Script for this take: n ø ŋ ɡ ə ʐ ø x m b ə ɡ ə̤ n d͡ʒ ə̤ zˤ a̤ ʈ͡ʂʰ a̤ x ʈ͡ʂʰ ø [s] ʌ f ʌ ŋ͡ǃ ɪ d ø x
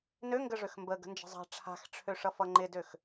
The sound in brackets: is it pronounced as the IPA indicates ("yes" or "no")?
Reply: no